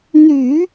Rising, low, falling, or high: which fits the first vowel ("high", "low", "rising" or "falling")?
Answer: low